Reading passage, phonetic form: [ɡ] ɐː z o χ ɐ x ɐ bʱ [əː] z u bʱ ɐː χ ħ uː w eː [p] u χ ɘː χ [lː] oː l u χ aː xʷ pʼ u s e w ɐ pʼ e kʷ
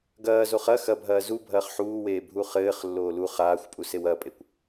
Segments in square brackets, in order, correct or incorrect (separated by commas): correct, incorrect, incorrect, correct